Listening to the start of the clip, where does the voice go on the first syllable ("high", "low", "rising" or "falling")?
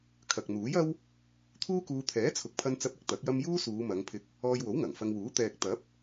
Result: low